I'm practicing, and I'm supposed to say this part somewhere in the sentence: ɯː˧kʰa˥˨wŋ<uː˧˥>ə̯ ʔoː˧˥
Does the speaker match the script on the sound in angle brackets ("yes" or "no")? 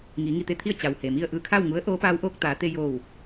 no